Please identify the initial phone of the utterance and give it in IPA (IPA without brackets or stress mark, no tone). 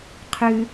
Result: qʰ